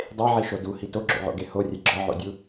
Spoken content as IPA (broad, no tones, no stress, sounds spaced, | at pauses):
dˤ e ʕ i ʃ o d u h i t o ɡ͡ǁ o̰ ʕ o̰ ɡ e h o rʲ e ɡ͡ǁ ɒ ʕ o̰ dʲ u